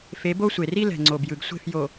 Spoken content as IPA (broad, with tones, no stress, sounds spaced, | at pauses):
f e˨˦ b o˦ sʷ e˨ r i˦ l ɛ̤˨ ŋ͡ǀ o˨ b j ɯ˨ ɡ sʷ e̤˦˨ f j o˨